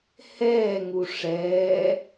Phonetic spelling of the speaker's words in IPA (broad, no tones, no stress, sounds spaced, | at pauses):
h ɛː ŋ u ʂ ɛː